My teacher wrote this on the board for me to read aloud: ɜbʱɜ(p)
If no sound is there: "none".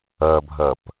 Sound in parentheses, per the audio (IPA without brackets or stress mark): p